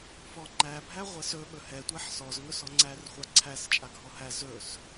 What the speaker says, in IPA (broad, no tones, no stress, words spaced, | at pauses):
fɔŋ͡ǃæbʱæ ʁʷɛsɵ ɓɵhɛtʷɛħ sɔzŋɵs ɔŋ͡ǀærχʷa ǀʰæs t͡ʃʼaɡʱɔhæ zɵs